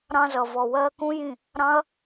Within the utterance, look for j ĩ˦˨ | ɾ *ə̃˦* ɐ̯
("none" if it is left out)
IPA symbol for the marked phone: ɑ̃˦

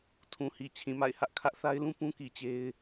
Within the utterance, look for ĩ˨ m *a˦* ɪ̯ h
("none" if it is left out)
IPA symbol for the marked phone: a̰˦˨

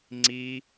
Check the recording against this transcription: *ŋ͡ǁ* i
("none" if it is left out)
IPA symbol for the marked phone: ŋ͡ǀ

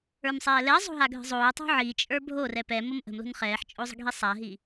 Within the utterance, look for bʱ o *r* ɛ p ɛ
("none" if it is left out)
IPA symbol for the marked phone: r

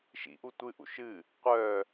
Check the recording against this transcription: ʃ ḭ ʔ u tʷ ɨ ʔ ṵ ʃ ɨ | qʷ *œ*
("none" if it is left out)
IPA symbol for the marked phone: œ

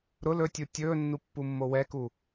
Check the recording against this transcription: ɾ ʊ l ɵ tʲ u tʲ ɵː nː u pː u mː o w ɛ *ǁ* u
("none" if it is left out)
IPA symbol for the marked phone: k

